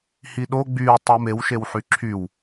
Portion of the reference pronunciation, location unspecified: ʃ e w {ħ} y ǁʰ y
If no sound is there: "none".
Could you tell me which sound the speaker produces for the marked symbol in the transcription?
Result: ħ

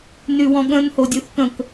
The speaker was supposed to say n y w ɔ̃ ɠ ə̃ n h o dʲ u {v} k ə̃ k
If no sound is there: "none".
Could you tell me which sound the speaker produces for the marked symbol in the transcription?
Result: θ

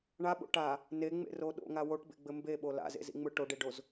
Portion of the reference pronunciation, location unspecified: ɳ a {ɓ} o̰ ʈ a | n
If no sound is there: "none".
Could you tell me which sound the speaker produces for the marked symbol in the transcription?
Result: ɓ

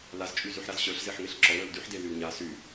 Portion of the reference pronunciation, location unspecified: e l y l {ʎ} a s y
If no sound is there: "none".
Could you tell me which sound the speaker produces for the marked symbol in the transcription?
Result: ɲ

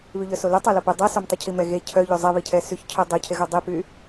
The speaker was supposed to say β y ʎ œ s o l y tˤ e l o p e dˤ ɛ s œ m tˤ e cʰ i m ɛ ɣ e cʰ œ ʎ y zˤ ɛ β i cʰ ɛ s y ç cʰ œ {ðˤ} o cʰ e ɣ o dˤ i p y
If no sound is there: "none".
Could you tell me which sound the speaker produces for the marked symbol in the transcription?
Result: dˤ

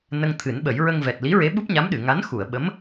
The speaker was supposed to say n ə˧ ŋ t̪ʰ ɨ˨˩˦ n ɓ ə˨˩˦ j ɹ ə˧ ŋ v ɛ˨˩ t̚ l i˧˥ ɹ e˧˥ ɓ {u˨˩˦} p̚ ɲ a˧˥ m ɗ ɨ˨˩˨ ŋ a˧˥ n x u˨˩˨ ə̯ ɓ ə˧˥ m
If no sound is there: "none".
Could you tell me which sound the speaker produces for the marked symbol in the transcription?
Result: u˦˥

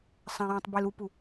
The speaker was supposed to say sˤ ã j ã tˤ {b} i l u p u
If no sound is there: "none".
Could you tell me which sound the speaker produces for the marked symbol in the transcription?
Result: b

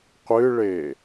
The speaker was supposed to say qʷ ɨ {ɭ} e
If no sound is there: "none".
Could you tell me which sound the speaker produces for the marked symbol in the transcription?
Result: ɭ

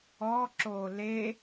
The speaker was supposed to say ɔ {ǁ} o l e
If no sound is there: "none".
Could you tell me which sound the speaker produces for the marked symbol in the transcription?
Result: ǁ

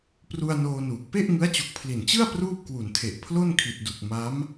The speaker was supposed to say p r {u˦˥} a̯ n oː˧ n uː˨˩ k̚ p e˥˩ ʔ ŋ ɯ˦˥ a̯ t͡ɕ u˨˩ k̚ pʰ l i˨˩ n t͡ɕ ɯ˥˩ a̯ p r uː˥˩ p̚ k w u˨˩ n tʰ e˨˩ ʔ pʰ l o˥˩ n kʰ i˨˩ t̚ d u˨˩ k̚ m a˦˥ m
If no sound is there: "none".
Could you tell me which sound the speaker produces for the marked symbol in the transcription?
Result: u˧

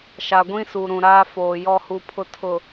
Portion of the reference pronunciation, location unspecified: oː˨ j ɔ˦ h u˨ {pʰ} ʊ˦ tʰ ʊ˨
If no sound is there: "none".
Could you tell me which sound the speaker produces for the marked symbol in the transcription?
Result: pʰ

